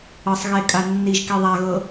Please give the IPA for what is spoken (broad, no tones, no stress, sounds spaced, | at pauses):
ɤ sˤ ɣ e kʼ a nː i ʒ k i ðˤ a ɣ ɤ